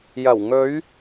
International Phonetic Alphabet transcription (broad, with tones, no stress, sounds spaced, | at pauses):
j ɐ˨˩ w ŋ ɵ˨˧ ɥ